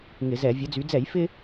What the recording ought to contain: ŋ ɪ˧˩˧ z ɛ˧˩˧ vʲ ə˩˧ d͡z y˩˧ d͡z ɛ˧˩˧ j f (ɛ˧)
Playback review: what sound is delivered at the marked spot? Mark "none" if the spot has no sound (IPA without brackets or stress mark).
ɪ˧